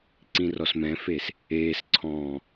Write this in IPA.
ǀ ĩ r ɔ s m ɛ̃ f e s | eː s ǀʰ ɔ̃ː

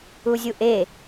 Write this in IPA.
u zʲ u ʔ e

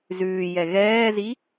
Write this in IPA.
z ʉː j ɛ ɣ ɛː z i

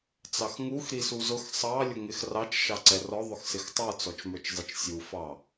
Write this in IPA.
t͡s ɑ x ŋ u x ɾ i s u z ʊ x sˤ ɑ lʲ ʊ ŋ ɪ x r ɑ t͡ʃ ʃ ɑ ǀ ɛ r ɔ ðˤ ʊ x s ɪ x tˤ ə˞ t͡s ɔ t͡ʃ m ə˞ t͡ʃ zˤ ɪ t͡ʃ sʲ u f ɑ

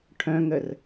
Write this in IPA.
ʈʰ œ̃ ŋ ə r

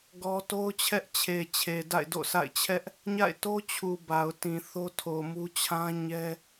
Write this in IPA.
ɡ ɔ˦ t o˦ ʊ̯ t͡ɕʰ ɛ˦ ʔ t͡ɕʰ e˨ t͡ɕʰ e˨ d a̰˦˨ ɪ̯ d o̰˦˨ s a̰˦˨ ɪ̯ t͡ɕʰ ɛ˦ ʔ | ɲ a̰˦˨ ɪ̯ t o˦ t͡ɕʰ u˨ b a˨ ʊ̯ t ĩ˨ θ o˦ tʰ o˨ m u˦ t͡ɕʰ ã˦ ɲ ɛ˦

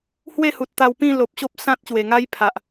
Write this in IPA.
h w e˥˧ h u˨ t̚ t̪ a˧ w p ĩ˥˧ l o˨ p̚ ɕ o˦ p̚ s ã˦ t̚ ɕ w e˨˩ ŋ a˦ j pʰ a˨ ʔ

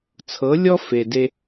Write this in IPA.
t͡sʰ ɤ˨˦ lʲ ɔ˦ f e˨ d e˧

